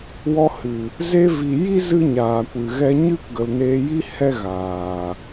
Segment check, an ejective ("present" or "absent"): absent